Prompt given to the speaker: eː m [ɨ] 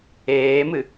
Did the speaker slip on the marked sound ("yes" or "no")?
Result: no